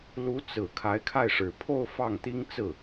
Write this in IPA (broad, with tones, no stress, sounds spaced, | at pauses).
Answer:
l u˧˥ t͡s ɹ̩˨˩ kʰ a˧˥ ɪ̯ kʰ a˥˩ ɪ̯ ʂ ɻ̩˨˩ pʰ o˥˧ ʊ̯ f ɑ˥˩ ŋ t̪ i˥ ŋ t͡s ɹ̩˥˩